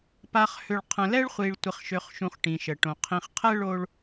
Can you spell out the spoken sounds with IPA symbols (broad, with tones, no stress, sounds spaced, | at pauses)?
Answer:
p a˨ χ h ø˨ ɭ qʰ ə̃˨ l ɛ˦ ɭ χʷ i˨ ɭ tʷ ɪ˨ χ ʃ ø˨ χ ʃ ũ˨ χ ʈ ĩ˨ ʃ ə˨ ʈ õ˨ qʰ ĩ˨ χ qʰ ɛ˦ ɭ o˦ ɭ